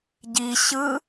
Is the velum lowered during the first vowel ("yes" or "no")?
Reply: no